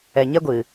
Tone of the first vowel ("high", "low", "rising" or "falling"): low